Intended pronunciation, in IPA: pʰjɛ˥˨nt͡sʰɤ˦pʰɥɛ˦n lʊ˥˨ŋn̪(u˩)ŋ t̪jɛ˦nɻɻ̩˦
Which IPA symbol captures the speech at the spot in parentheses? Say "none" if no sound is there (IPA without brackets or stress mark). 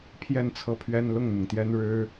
ʊ˩